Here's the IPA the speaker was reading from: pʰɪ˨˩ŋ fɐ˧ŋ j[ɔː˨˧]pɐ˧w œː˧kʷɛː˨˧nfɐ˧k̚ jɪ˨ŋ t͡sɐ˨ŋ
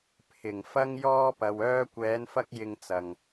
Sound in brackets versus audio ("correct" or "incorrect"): incorrect